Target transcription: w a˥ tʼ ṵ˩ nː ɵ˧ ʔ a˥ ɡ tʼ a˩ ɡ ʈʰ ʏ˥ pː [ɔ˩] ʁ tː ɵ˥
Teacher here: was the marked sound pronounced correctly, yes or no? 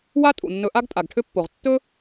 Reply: no